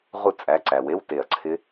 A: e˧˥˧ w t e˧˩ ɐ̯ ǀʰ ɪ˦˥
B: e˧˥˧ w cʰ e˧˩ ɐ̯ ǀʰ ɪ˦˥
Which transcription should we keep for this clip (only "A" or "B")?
A